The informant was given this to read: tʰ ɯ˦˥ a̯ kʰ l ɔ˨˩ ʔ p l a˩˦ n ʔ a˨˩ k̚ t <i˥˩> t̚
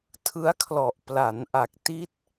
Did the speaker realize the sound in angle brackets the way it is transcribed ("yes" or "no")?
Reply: no